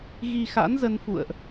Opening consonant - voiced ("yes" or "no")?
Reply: yes